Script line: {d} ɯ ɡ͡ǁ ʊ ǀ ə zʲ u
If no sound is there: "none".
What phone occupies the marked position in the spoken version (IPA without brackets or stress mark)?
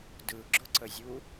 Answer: d